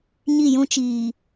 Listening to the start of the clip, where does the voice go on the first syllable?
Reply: falling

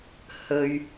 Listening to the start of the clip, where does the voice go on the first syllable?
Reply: high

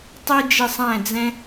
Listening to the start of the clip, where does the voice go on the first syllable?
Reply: high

